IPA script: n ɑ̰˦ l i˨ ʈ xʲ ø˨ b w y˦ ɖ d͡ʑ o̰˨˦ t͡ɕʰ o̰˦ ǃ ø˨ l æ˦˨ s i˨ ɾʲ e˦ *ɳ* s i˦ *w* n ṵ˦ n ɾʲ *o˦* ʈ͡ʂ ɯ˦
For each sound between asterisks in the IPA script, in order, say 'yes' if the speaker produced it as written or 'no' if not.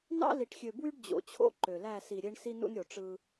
yes, no, no

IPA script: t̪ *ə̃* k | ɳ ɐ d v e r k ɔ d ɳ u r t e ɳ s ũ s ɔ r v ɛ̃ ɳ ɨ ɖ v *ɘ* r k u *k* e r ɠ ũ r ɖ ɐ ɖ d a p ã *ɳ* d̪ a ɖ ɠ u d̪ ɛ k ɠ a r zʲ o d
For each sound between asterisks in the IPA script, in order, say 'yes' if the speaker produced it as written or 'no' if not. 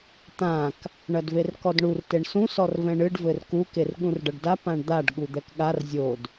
no, yes, yes, yes

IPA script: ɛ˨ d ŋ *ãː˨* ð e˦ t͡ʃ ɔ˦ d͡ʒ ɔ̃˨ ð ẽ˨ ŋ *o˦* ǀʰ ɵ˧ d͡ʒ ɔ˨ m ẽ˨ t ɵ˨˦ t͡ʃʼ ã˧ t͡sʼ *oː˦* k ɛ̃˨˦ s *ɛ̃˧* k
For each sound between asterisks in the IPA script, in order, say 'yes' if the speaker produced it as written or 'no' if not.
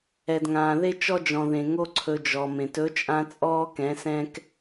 yes, yes, no, no

